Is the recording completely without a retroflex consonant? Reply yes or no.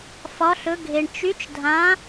no